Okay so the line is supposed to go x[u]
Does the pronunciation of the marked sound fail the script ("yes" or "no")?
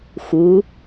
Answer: no